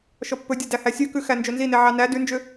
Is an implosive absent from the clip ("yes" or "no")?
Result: yes